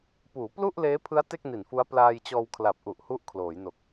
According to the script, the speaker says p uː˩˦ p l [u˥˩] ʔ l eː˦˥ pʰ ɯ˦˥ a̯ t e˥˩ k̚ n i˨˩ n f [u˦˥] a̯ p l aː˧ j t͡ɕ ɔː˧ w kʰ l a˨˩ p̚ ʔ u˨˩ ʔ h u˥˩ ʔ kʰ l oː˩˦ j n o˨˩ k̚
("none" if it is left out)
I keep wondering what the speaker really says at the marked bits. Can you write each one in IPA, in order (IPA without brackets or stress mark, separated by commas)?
u˥˩, u˦˥